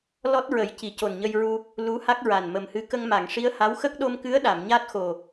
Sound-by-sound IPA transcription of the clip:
l ɔ˦˥ t̚ ɹ ə˨˩˦ j c i˨˩˨ c o˨˩ n ɲ ə˧ j ɹ u˧ | l u˧˥ h a˦˥ k̚ ɹ a˨˩ n m ə˨˩ m h ɨ˧˥ k ə˧ ŋ m a˨˩˨ ŋ ʂ i˧˥ ə̯ h a˧˥ w x ə˦˥ k̚ ɗ o˧ m k ɨ˧˥ ə̯ ɗ a˨˩˨ m ɲ a˦˥ t̚ x o˨˩

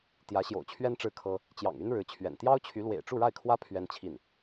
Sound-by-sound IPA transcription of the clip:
t̪ j ä˧˥ ɕ j o̰˨˩ ʊ̯ t͡ɕʰ ɥ ɛ˥ n ʈ͡ʂ ɻ̩˥˩ kʰ ɤ˥ | t͡ɕ j ɑ̰˨˩ ŋ y˥ n ɻ ɻ̩˧˥ t͡ɕʰ ɥ ɛ̰˨˩ n t̪ j ɑ˥ ʊ̯ t͡ɕʰ y˧˥ l w ḛ˨˩ ɪ̯ ʈ͡ʂ u˥˧ ɻ a˥˩ ɪ̯ kʰ w ä˥ pʰ ɥ ɛ˥ n t͡ɕʰ i˥˩ n

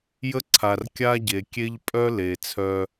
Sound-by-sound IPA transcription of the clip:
j ə˦ ǀʰ a˨ r kʲ a˦ ɟ e˨ kʲ e˦ ʎ pʼ œ˦ l e˨ t͡sʰ œ˧

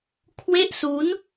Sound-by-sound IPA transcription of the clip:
kʰ w e˥˩ ʔ s uː˦˥ n

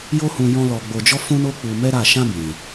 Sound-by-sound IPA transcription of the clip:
j o˦ h ũ˧ j ɔ̃˦ l ɔ˧ ɡ͡b o˧ d͡ʒ ɔ˦ f ũ˦ n o˦ k͡p u˧ m ɛ˦ ɾ a˦˨ ʃ ã˧ b ĩ˨

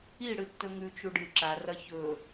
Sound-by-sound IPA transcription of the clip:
i ɽ ɨ tː ɵ ŋ ʉ t͡ʃ u ɖ ɨ ǁ a r ɐ ç ɵ

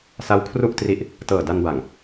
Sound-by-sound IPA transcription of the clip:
s a˦˥ w kʰ r u˥˩ ʔ t r i˦˥ ʔ | t ɤː˨˩ d a˧ n b a˨˩ ŋ

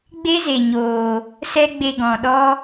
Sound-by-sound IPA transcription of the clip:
ɡ͡b e˦ z e˨ ɲ oː˨ | s ɛ˦ ɡ͡b e˧ ɡ ɔ̃˨ ɗ ɔ˦

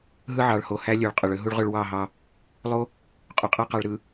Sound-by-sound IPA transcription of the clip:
ɦ ɯ˦ ʕ ɑ˨ ɭ h o˨ h æ˦ lʲ ø˨ ɭ qʼ ø˨ ɭ ø˦ ɦ u˦ ɭ ʁ ø˦ ɭ w ɑ˦˨ ɦ ɑ˦ | lˠ o˦ | qʼ y˨ qʼ æ˦ q ɑ˨ ɭ ɾ ɯ˨

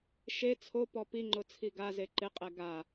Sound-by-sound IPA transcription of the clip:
ʃ e t͡sʰ o p ɔ p i ŋ͡ǃ ʊ t͡sʰ i ɡ a z e ǃ ɪ qʼ ɛ ɡ a

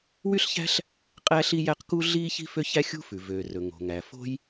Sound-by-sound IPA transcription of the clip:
w y˥ ɬ ç æ̤˥ ɬ | qʼ æ˥ ɬ i˥ j æ˥ q k u˥ ɮ iː˥ ç i̤˥ f ø˥ ç æ˥ xʲ ṳ˥ f ʉ˩ v øː˩ r ɵ˩ ŋ o̤˩ ŋ æ˩ f o̤˥ j

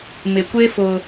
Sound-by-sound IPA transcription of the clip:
m ɪ˨ kʷ e˦ f ʊ˦

